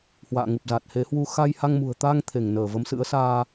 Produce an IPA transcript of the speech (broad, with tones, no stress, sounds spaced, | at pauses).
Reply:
h w a̰ː˧˨ ŋ u˨˩ p̚ z a˨˩ t̚ h e˨˦ h w u˧ x a˧ j h a˧ ŋ m ṳ˨˩ ə̯ t̪ a˧ ŋ t̪ʰ e˧˩ ŋ n əː˧˩ v ə˨˦ m s ɨ̰˧˥ ə̯ s aː˧